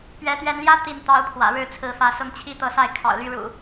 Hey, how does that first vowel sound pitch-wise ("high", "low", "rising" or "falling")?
rising